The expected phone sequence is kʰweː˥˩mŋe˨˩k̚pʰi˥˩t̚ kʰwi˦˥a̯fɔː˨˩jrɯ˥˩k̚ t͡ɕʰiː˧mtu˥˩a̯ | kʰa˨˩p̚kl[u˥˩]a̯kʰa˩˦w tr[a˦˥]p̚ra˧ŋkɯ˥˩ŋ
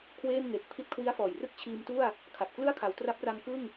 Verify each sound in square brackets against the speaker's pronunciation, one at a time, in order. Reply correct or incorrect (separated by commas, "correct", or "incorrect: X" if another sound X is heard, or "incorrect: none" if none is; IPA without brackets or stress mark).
incorrect: ɯ˥˩, correct